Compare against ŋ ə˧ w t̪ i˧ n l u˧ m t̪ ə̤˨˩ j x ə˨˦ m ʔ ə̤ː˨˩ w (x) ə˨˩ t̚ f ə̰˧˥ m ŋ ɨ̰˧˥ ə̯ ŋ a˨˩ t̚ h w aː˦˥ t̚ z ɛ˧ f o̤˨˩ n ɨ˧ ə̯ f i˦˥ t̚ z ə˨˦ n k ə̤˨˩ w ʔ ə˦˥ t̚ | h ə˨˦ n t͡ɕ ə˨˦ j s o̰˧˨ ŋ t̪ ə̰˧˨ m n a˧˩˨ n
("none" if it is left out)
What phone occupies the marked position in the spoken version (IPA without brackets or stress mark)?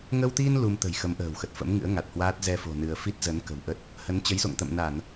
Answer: x